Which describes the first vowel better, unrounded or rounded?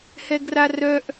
unrounded